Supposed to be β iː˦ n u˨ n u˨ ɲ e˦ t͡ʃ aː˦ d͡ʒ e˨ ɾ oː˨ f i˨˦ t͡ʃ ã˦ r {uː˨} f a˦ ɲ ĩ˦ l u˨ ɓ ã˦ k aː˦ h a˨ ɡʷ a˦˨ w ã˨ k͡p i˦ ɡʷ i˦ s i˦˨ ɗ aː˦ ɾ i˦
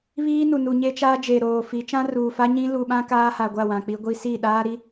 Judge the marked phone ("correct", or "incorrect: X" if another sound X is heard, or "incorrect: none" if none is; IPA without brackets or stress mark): correct